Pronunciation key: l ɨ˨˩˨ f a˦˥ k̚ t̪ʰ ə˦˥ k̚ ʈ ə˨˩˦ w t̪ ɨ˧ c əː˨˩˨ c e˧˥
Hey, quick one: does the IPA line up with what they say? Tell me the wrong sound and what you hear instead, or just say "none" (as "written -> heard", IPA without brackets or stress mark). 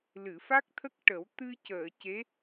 none